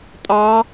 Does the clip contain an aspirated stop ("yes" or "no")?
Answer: no